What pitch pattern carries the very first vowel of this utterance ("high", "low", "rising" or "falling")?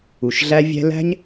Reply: low